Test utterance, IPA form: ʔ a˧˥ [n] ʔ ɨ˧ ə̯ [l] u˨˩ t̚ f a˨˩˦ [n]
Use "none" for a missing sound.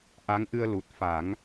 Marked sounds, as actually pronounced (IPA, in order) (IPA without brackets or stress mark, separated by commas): ŋ, l, ŋ